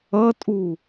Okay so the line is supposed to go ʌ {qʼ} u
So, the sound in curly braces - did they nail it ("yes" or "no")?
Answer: no